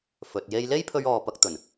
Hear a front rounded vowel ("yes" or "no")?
no